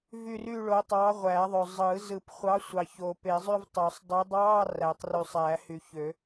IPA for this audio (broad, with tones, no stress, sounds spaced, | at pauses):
v y˥˧ r y˥˧ ɭ o˨˥ tˤ ɑː˨˥ ʁʷ æ˨˩˦ ðˤ ø˨ zˤ ɯ˨˩˦ z ɯ˨˩˦ p χʷ ɑ˨˥ sʷ ɑ˨ ç oː˨ p e˨˩˦ zˤ y˥˧ v tˤ ø˨˩˦ sˤ dˤ y˨˥ dˤ ɑː˧˥˧ r æ˨˩˦ tˤ r y˨ sˤ æ˨˩˦ h y˨ ç ø˨˩˦